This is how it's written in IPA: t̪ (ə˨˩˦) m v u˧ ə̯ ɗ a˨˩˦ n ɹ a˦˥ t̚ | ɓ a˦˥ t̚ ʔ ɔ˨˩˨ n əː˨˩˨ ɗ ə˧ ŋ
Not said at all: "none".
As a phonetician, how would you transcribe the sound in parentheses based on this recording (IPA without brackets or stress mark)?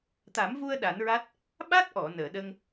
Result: a˨˩˦